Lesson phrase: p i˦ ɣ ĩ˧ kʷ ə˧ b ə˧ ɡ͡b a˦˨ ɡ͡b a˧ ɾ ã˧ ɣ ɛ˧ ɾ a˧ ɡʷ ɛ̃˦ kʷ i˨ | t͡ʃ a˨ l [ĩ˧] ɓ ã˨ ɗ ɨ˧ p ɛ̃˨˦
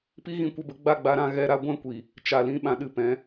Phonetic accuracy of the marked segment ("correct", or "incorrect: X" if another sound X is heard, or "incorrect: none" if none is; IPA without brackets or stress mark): correct